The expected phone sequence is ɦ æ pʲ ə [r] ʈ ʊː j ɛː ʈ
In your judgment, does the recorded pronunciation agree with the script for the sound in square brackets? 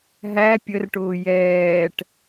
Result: yes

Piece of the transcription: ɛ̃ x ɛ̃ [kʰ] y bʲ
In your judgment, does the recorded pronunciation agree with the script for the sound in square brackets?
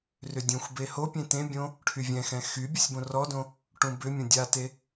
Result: no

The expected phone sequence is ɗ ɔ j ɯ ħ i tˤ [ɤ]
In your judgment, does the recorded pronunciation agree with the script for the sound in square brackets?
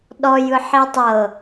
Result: yes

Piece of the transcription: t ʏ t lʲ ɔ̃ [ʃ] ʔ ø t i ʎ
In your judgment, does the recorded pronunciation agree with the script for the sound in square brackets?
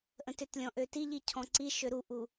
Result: no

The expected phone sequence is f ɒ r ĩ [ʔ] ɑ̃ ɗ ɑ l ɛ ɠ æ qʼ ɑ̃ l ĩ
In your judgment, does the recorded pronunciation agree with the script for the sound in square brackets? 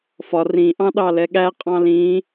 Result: yes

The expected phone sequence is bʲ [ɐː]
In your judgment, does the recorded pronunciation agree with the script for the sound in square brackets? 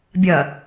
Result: no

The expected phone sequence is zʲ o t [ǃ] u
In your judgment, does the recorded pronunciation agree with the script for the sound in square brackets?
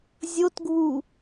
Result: no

